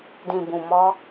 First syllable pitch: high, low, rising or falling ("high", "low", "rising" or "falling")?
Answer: low